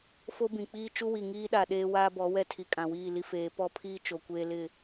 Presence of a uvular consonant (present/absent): absent